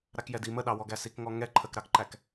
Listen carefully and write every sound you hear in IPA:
ɾ a k j ɛ d i m ə ɗ ɑ w ɔ ɡ æ s i k ŋ ɔ ŋ ɛ ǃʰ ə k ɾ ɑ k ǃ æ k

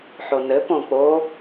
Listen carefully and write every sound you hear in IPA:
ħ o n ɘ p õ k͡p o

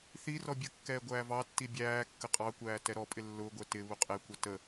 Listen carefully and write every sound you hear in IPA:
θ i r ɔ bʲ ə kː ɛː ɡʷ æː v ɑ tː i bʲ æː kː ə qʼ ɑ kʷ æː t ɛ ɾ ɔ pʼ ɪ lː ʊː ɡʷ ɛ t ɪ β u qʼ ɛ kʷ ʌ t ə

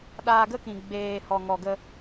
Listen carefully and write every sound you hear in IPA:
ɗ aː˧ ɡ ə˦ k ĩ˨ ɡ͡b eː˨ h ɔ˨ ŋ ɔ˨ ɡ ə˧

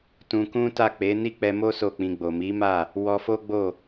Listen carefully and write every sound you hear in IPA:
t ũ˧ k ũ˦ t a˦˨ k͡p e˨˦ n i˦ k͡p ɛ˧ m o˦ s o˦˨ k͡p ĩ˧ ɡ͡b o˨ m i˨˦ m a˦˨ | w ɔ˧ f o˦ ɡ͡b o˦˨

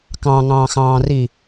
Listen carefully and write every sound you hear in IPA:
k ɑ̃ ŋ ɑ̃ː x ɑ̃ː r i

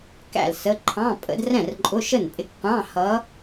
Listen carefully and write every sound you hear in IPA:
k æ̰˥˩ l s ə˧˥˧ ǃʰ ɑ̃˧˥˧ pʼ ə̰˧˥ d r ɛ̃˥˩ r ǃʼ ʊ˧˥˧ ʃ ə˥˩ n pʼ ɪ˧˥˧ k qʷ ɑ̃˧˥˧ h ʌ˧˥

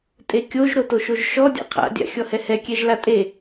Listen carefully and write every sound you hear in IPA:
tʼ e kʲ o ʒ ɾ o t o ʃ o ʒ ʃ ɔ dʲ a̰ qʰ a̰ dʲ a̰ xʲ ɔ h ɛ h ɛ kʲ ɛ ʒ l a tʼ e

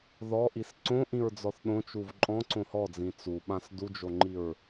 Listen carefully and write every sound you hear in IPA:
ð ɔ ʔ i s ǀ õ ʔ ĩ ɹ d͡z ɔ θ ɗ õ t͡ʃ u v ǃʼ ɔ̃ ǀ õ h ɔ d͡z ĩ t͡s u ɓ ã s d u d͡ʒ o ŋ͡ǃ i ɹ

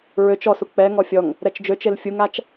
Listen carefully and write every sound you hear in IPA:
ɹ ø t͡ʃ ɔ s u k͡p ɛ ŋ ɔ fʲ ɔ ŋ | ɾ ɛ t͡ʃ d͡ʒ ø t͡ʃ e l fʲ u ŋ a t͡ʃ

